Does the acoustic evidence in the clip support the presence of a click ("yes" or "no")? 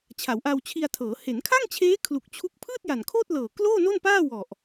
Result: no